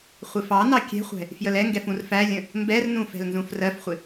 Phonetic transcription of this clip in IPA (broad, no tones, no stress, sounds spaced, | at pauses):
χʷ ɪ f ɑ n ɑ kʲ ɛ̤ χʷ ɛ̤ | f j ə l ɛ ŋ ɡ ɛ f ũ r f æ lʲ ə̃ | m b ɛ r n ũ f ɛ̤ l n z ũ f r ɜ f χʷ ɪ